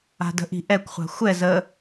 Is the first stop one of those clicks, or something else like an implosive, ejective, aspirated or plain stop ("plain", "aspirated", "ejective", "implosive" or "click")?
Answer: plain